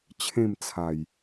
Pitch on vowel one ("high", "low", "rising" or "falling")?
falling